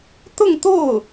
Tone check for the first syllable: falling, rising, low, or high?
falling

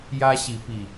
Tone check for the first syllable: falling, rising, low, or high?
high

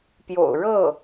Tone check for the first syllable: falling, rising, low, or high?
low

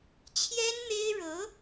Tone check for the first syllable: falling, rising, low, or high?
high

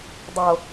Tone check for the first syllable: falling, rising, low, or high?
low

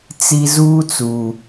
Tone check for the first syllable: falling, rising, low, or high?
low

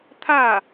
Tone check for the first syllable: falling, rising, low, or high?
falling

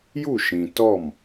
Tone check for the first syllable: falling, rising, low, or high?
falling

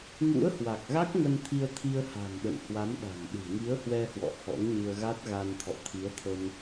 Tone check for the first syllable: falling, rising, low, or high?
rising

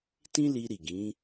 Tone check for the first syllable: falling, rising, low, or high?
high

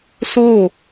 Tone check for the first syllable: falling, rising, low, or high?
falling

